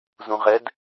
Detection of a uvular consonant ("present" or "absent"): present